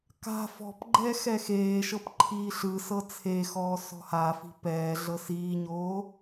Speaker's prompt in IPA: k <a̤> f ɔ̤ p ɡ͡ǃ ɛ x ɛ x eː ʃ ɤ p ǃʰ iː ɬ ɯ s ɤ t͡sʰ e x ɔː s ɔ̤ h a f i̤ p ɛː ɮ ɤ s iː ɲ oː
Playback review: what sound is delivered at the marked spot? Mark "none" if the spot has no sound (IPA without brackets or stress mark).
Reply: a̤